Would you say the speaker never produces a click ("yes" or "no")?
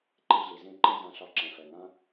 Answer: no